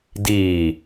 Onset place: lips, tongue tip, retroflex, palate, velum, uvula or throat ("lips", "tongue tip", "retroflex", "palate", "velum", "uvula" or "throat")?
tongue tip